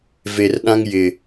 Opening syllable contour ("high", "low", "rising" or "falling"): low